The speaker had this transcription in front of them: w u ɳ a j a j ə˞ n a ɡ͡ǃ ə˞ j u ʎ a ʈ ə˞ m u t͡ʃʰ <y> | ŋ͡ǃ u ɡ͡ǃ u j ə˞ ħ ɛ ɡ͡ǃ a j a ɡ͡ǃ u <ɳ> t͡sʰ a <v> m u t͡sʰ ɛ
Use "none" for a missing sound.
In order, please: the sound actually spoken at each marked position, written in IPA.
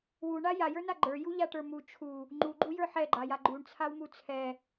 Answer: u, ɳ, w

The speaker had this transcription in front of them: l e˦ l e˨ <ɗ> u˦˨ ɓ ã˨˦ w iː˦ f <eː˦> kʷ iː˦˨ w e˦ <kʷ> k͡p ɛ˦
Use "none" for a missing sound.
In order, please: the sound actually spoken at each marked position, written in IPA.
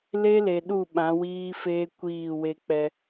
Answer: ɗ, eː˦, none

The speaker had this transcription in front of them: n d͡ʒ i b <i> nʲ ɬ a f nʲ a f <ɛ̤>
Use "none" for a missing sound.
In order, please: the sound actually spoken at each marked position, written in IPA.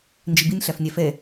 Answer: i, ɛ

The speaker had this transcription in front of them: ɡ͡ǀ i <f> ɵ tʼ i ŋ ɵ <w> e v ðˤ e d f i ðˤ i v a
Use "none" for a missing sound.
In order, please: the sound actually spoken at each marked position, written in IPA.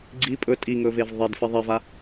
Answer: pʼ, v

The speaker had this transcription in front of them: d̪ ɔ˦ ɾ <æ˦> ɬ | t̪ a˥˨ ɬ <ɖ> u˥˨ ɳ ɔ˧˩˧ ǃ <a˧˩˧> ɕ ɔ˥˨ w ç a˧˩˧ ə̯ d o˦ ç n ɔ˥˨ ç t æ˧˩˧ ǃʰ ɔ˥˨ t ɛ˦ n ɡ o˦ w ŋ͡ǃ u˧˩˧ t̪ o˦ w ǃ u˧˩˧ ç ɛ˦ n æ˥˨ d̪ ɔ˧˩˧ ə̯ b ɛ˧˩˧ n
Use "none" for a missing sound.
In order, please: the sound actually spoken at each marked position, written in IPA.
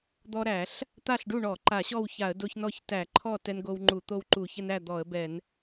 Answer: æ˧˩˧, ɖ, a˧˩˧

